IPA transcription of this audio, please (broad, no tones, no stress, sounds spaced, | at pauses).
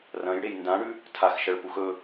r ɐ̃ j ɽ e j n d ã ɽ ʉ | tʰ a x ʃ ɐ ɭ p u x ɵ